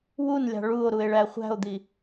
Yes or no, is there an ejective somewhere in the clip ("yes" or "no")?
no